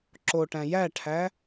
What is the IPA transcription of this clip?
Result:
ǁoʈæ̃ jæʈʰæ

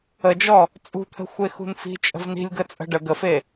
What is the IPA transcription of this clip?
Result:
əd͡ʒɔ | t͡sʼṳt̪ʰə̤xʷe xṳnfi̤ t͡ʃʼə̤vni̤lʲɡə t͡sʼə̤ɖə ɡəfe

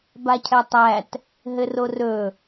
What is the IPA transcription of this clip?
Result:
bacʰɛtˤæt | ɦɘrorɵ

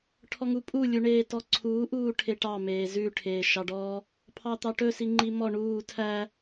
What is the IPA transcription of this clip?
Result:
ʈʰɔŋupʼu lʲuɳeːtɔǀʰuː ʔuːʈʰeʈɑ meːzʉ ʈʰeːʃɑɖɔː | pʰɑt̪ɑʈɵ siŋ͡ǃimɔ ɳuː tʰæ

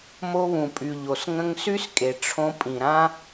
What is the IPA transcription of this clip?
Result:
mo˧βũ˨pʼy˨ ʎo˨sŋə̃˧ŋsy˦s kʼe˨ʈ͡ʂʰõ˧pʼĩ˨ɾã˦

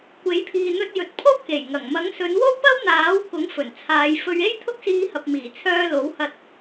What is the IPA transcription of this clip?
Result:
kʷe˨˥jpʰiː˨ n̪ɵ˧t̚ jɵ˨t̚pʰo˥wke˨˩jŋɐ˨˩ŋ mɐ˨˥ŋsɵ˨˧nwo˥w pɐ˥wn̪aː˨˥wkʊ˨˥ŋ fɵ˨˩nt͡sʰaː˨˧j fɵ˧ɥ e˥jt̪ʰʊ˥k̚siː˧hɐ˨p̚ miː˨˩t͡sʰœː˧lo˨˥whɐ˧t̚

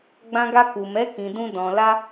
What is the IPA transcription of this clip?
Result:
ɡ͡bã˧ɡa˧ku˨mɛ˨˦ kĩ˧dũ˦dɔ̃˧ la˦

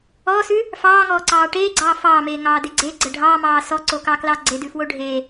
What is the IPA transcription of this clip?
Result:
ɔːsʉ | fɑːŋɔːǀɑː ʈeːɡ͡ǀɑː fɑːmeːŋɑːde ɡ͡ǀeɡ͡ǀə ɖʱɑːmɑː sɔǀokɑklɑ ɡ͡ǀedʉfwo ɖʱe

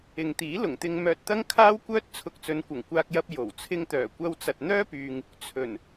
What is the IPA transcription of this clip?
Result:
ɪ˨ŋt̪iː˨˥ lʊ˨˩ŋt̪ɪ˧ŋ mœː˧t̚t̪ɐ˥ŋkʰaː˥wkʷœː˥t̚ t͡sʰʊ˧k̚t͡sɵ˨˧nkʷɐ˨˩ŋ kʷaː˧k̚jɐ˧p̚ jo˨˩w t͡sʰɪ˧ŋt̪œː˨˩ kʷɐ˧wt͡sɐ˨t̚n̪œː˥pyː˨ŋ | t͡sʰɵ˨˩n

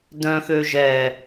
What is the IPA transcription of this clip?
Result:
dœ̃xø ʒɛ

